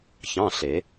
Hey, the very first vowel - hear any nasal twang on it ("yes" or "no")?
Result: yes